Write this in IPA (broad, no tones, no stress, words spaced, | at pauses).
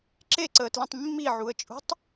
ǁeǀəːtlĩtˤ mːiʕuə̯t͡ʃʼṳtˤ